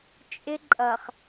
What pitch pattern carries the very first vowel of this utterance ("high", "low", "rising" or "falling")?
high